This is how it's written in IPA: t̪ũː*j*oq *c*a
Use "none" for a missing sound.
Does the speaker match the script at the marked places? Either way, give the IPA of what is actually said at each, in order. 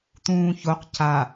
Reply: ç, c

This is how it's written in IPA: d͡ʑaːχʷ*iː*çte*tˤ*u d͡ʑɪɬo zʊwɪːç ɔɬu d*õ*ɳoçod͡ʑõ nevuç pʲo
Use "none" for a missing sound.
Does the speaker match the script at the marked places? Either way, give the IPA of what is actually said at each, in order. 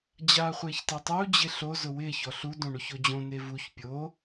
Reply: ɪː, tˤ, õ

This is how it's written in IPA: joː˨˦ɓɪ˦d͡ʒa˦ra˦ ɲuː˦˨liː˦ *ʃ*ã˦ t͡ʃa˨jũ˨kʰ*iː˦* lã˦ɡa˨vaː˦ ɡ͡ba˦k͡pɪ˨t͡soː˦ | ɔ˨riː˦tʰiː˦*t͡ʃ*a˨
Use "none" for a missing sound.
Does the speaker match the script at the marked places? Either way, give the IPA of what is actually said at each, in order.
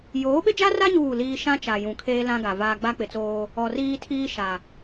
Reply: ʃ, eː˦, ʃ

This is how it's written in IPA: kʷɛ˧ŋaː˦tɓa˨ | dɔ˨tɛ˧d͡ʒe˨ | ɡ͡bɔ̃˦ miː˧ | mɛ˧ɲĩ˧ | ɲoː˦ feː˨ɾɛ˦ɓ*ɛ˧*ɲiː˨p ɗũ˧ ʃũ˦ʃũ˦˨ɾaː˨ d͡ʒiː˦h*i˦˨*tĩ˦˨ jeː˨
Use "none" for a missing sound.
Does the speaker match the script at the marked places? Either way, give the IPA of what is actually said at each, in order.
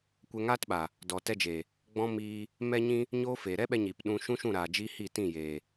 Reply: ɛ˧, i˦˨

